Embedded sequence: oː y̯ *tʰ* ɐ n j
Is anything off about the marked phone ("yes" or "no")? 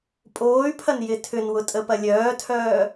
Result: yes